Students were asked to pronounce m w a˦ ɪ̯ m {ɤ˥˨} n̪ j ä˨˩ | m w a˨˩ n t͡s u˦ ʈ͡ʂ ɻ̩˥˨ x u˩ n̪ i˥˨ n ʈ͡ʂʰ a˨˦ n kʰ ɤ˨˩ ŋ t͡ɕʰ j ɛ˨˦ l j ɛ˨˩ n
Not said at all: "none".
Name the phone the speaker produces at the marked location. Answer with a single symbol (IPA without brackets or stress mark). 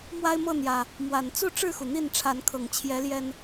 ɤ˥˨